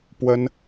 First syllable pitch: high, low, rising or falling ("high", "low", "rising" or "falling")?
high